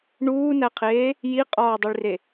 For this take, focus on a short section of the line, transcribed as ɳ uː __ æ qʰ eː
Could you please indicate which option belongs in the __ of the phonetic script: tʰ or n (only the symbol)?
n